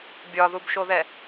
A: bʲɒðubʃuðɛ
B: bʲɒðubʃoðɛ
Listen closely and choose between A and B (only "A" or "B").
B